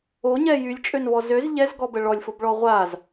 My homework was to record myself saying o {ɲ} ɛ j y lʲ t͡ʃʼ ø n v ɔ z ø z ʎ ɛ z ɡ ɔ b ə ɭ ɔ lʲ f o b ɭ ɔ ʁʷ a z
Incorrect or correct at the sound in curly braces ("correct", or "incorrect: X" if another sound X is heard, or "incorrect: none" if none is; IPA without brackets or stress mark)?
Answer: correct